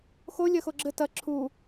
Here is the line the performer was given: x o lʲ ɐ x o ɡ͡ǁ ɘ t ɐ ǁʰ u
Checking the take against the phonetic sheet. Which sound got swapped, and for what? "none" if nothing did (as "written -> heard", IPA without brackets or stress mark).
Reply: none